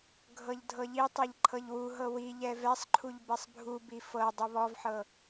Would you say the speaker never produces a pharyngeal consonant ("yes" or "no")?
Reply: no